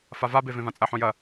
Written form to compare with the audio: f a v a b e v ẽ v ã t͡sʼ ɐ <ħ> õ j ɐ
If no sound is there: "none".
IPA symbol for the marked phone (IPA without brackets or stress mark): ħ